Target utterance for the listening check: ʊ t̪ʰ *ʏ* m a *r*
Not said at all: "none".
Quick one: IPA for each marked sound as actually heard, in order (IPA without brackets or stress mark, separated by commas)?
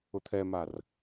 ɛ, r